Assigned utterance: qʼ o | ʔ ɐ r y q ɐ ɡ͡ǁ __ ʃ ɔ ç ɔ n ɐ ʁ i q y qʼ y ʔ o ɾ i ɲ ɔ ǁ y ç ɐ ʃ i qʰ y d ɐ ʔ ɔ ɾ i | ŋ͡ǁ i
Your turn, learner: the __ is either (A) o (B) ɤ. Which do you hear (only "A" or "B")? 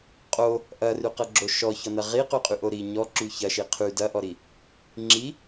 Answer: A